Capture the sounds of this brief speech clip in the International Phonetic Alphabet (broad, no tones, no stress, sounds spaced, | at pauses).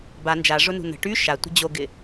b a n d͡ʒ a ʐ ʊ n ṳ n ə̤ ʈ y ʃ a tʷ ə̤ d͡ʑ o ɡ ɪ